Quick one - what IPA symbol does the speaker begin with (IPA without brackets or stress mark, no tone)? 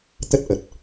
t̪